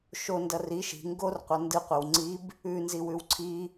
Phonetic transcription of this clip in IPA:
ʃo ndɐri ʃi̤ ŋɡorqʷɐ ndɨqʷɨw ŋ͡ǀib | ʉnzi wʉwǀʰi

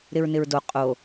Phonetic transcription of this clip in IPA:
ɾɪɹnɪɹdo qʼo

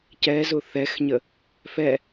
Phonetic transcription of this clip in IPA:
cɛzʊ θɛxɲə | fɛ

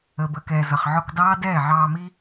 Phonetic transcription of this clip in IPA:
əː˨bə˦˨kɛː˨ zʌ˨χʕɔ˧kdɑː˦dɛː˦˨ ʕɑː˧mi˦

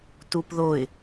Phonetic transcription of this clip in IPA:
tupðoɪ̯

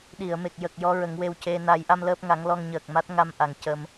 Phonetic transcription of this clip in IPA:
ɗi˨˩˨ə̯me˨˩k̚jə˨˩k̚ jɔ˧˥ɹə˨˩˦ŋwe˧wce˧ na˨˩˦jʔa˧m ləː˦˥p̚ ŋa˨˩˦ŋlɔ˧ŋɲəː˨˩k̚ma˦˥t̚ ŋa˧mʔa˨˩ŋ cə˧m

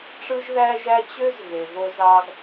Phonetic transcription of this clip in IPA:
ʈ͡ʂɯ˧ʒðæ˧ʒæ˧ t͡ɕø˧z ɣe˩vo˧zɑ˧ɡ

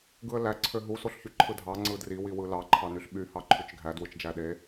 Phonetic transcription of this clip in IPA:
ɡɯə̯læ ǀʰøɦu soɬçyǃʰɯdʱɑ ŋ͡ǀɯdri wiwɯlɑ ǃʰɑnyɬɓy hɑǃʰyt͡ʃɡʱæ dwɯt͡ʃd͡ʒæɗe

